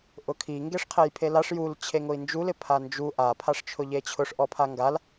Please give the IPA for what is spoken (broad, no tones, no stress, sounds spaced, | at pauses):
ʔ ʊ kʰ i ŋ ɡ e ʂ qʰ e j pʰ e l a ʂ j u l t͡ɕʰ e ŋ ʊ i̯ n d͡ʒ u l ɪ pʰ a n d͡ʒ u ʔ a pʰ a ʂ t͡ʃʰ ʊ ʎ e t͡ɕʰ ʊ ʂ ʔ ɔ pʰ a ŋ ɡ a l